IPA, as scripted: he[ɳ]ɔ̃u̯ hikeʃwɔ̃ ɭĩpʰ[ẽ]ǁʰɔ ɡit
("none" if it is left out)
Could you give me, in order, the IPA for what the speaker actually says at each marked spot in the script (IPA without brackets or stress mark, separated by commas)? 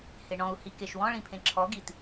ɳ, ẽ